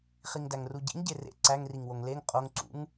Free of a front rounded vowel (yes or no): yes